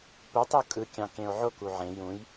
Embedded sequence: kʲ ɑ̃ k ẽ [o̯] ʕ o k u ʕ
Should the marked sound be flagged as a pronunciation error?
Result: no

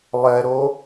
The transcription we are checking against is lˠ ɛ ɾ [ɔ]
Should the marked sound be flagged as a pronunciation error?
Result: yes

